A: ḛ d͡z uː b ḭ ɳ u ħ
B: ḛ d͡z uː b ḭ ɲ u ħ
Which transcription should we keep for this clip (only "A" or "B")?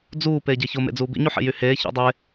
B